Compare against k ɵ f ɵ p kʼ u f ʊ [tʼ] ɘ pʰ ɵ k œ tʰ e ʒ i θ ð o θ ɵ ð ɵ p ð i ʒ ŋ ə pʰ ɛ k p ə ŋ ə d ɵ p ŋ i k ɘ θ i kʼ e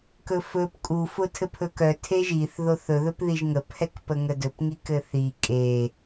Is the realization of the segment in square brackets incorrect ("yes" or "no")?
yes